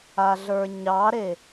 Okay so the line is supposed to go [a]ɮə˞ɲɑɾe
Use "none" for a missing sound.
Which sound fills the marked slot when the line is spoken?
a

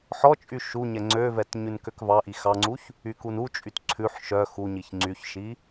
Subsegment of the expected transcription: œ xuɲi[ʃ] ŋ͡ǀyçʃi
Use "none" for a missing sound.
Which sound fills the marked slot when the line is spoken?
ç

